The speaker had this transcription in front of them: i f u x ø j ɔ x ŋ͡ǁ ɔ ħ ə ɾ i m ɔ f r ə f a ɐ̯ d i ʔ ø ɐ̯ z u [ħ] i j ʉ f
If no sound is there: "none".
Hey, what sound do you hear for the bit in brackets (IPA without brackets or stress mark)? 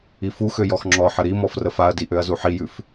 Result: ħ